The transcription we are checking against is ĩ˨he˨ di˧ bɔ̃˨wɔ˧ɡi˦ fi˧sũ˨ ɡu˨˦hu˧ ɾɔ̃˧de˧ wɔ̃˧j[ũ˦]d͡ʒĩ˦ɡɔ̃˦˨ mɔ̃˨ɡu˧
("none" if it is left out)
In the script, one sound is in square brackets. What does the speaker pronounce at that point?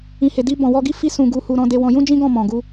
ũ˦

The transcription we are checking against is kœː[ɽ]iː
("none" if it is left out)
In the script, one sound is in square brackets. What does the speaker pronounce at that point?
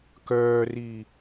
r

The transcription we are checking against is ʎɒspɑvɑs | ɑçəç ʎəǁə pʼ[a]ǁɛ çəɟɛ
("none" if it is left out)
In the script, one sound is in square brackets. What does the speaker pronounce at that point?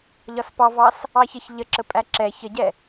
æ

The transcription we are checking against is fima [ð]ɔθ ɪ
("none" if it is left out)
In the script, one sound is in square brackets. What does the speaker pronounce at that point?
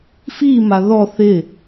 ð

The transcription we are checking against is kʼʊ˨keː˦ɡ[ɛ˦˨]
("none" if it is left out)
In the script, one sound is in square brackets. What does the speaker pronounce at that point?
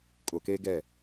ɛ˦˨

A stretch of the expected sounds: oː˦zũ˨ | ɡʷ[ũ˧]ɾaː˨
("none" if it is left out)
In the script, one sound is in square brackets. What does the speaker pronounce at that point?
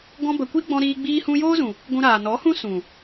ũ˧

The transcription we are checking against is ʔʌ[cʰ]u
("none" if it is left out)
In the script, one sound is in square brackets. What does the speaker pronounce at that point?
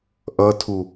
tʰ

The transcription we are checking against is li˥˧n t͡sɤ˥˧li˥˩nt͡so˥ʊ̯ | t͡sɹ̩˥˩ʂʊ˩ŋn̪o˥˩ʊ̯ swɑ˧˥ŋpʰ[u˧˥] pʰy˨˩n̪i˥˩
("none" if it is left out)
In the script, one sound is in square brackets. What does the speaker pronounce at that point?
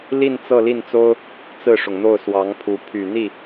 u˧˥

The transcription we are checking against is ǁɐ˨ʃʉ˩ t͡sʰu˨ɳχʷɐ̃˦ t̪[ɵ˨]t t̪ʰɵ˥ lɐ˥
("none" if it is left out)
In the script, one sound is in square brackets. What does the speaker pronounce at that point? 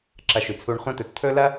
ɵ˨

